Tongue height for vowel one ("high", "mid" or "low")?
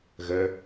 mid